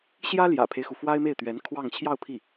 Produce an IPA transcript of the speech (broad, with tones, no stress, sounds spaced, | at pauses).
ɕ j ä˥ l j ä̰˨˩ pʰ e˦ ɪ̯ x u˩ f w a˥ ɪ̯ m e˥˩ ɪ̯ t̪ ɥ ɛ˧˥ n kʰ w ɑ˥˧ ŋ t͡ɕʰ j ɑ˥˧ ʊ̯ pʰ i˥˩